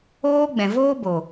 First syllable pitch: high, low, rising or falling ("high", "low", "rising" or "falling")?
high